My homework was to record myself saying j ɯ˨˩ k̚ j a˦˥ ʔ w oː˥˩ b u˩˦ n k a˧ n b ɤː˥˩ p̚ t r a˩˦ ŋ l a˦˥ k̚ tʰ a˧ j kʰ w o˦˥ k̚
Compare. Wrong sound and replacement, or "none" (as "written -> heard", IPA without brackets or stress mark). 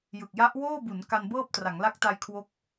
tʰ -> t